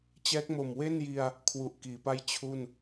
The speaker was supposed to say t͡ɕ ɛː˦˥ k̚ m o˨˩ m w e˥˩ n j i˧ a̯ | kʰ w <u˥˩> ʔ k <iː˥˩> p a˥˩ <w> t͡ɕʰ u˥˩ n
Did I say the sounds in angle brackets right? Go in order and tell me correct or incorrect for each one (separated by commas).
incorrect, incorrect, incorrect